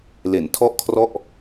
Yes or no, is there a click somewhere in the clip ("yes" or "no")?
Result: no